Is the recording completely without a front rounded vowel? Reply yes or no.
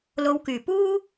no